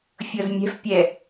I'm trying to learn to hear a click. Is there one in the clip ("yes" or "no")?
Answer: no